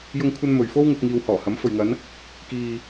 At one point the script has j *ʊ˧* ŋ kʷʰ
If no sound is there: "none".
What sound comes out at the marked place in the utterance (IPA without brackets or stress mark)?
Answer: ʊ˧